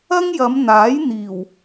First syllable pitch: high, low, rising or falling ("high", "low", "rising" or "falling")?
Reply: high